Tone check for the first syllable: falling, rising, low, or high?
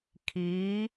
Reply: rising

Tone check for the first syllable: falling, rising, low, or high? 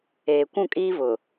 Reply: low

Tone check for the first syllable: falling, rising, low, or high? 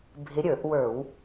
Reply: rising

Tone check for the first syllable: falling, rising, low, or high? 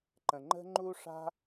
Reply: low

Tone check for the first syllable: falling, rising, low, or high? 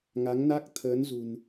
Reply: rising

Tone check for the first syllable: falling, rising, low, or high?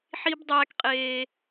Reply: high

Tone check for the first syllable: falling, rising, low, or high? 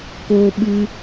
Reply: high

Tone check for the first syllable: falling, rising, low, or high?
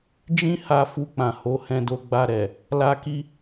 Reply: high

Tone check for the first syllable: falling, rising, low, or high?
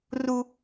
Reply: high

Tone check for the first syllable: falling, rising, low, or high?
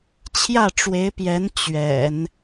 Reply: falling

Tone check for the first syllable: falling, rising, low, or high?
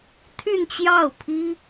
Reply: falling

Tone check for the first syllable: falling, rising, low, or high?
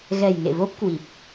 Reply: low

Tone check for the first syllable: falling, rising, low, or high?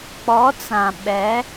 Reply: rising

